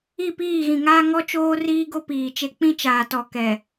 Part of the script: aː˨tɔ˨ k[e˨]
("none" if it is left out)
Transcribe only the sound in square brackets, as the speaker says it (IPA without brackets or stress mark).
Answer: ɛ˨